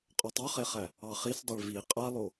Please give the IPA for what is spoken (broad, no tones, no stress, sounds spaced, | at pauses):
qʼ ɔ tˤ ø χ e χ æ | ɑ χ i s dˤ e ɭ v i qʼ a lˠ o